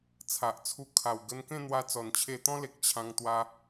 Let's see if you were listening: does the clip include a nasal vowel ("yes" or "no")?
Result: yes